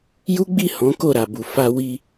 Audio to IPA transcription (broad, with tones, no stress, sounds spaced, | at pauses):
j u˦ ɡ͡b i˦˨ h ɔ̃˨˦ k o˦˨ ɾ a˨ b u˨ f a˧ w i˧